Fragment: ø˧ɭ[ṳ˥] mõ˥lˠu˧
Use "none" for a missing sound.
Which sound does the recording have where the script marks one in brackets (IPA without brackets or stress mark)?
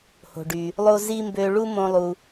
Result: u˥